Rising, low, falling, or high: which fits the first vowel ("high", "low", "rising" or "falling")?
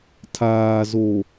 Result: low